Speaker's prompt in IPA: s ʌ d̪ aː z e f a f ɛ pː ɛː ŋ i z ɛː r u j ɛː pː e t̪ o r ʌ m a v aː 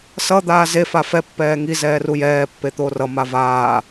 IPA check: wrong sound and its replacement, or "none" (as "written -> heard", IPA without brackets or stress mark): none